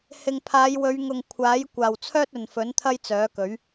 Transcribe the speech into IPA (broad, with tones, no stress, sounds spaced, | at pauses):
h ɪ˨ ŋ pʰ aː˨˧ j w ɵ˨˧ ɥ ŋ ʊ˨ ŋ kʷʰ aː˨˥ j kʷ aː˨ w t͡sʰ œː˥ t̚ ɵ˨ n f ɵ˨˥ n t̪ʰ ɐ˥ j t͡s œː˨˥ k ɵ˨˥ ɥ